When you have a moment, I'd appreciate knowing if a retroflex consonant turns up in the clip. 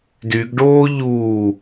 yes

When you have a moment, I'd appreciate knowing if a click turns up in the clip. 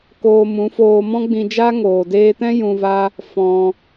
no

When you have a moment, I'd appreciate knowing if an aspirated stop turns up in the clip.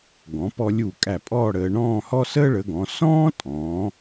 no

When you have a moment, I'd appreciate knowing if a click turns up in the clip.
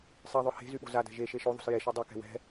no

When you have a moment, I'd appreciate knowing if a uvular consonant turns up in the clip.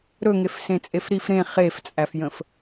yes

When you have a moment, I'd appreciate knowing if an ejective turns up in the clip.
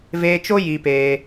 no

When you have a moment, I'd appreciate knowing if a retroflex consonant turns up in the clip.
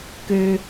no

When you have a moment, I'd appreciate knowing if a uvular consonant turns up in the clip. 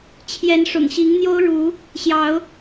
no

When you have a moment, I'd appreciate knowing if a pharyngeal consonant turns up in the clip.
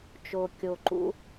no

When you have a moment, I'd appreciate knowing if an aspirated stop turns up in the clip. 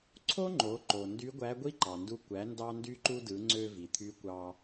yes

